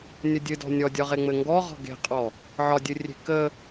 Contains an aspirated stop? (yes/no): no